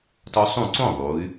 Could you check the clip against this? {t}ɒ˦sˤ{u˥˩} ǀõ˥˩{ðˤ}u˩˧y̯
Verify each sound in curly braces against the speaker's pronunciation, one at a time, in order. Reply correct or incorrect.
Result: correct, incorrect: ũ˥˩, correct

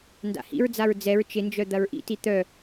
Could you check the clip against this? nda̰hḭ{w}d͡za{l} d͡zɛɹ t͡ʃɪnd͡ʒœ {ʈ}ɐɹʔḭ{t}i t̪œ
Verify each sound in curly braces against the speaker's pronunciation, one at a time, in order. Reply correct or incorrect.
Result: incorrect: ɹ, incorrect: ɹ, incorrect: d̪, correct

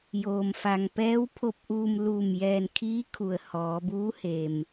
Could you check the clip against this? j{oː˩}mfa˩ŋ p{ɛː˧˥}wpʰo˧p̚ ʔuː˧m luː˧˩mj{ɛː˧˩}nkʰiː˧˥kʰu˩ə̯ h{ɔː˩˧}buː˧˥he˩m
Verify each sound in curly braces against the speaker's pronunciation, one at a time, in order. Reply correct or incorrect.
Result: correct, correct, correct, correct

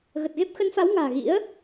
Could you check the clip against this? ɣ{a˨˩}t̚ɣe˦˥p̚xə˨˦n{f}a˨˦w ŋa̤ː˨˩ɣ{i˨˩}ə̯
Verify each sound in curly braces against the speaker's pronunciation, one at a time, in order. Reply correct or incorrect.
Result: incorrect: ə˨˩, correct, incorrect: ḭ˧˥

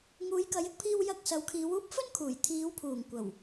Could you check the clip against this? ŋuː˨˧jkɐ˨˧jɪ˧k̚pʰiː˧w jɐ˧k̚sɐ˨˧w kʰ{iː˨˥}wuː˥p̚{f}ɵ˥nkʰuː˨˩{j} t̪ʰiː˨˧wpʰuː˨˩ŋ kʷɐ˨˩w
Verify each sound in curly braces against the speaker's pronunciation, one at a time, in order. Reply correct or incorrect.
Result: incorrect: iː˨˧, correct, correct

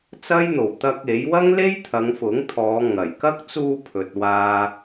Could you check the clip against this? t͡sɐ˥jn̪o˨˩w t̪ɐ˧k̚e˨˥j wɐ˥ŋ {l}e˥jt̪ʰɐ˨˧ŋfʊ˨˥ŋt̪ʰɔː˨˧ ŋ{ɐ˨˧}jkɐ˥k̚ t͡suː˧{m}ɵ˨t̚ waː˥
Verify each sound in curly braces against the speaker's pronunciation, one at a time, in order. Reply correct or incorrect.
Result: correct, incorrect: ɐ˨˩, incorrect: pʰ

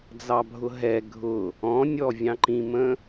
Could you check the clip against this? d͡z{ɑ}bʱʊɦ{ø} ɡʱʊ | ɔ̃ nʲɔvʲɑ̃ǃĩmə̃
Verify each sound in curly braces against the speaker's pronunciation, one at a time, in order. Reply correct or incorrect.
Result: correct, incorrect: ɛ

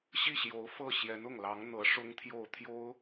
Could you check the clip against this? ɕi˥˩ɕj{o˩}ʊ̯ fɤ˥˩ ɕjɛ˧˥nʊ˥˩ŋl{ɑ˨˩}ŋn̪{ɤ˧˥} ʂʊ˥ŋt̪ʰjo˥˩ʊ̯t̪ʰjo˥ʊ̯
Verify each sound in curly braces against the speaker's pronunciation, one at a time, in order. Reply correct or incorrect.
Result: incorrect: o˧˥, incorrect: ɑ˧˥, correct

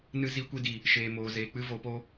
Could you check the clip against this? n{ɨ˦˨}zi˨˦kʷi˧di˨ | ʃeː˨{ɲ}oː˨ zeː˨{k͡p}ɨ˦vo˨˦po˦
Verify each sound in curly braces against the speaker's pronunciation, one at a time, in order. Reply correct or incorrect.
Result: incorrect: ɨ˧, incorrect: m, correct

